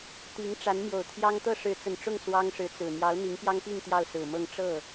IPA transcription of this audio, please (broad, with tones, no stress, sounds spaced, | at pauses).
t̪ i˧˥ ŋ ʈ͡ʂ a˧˥ n m j o˨˩ ʊ̯ t̪ʰ j ɑ˥ ŋ t̪ ɤ˥˩ ʂ ɻ̩˧˥ t͡s ə˨˩ n ʈ͡ʂ ʊ˥˩ ŋ s w ɑ˥ ŋ ʂ ɻ̩˧˥ t͡s ɹ̩˨˩ n̪ j ɑ˧˥ ʊ̯ n̪ i˧˥ ŋ p j ɑ˥ ŋ p i˥˧ ŋ t̪ j ɑ˥˩ ʊ̯ s ɹ̩˨˩ m ɤ˥˧ ŋ ʈ͡ʂ ɤ˥˩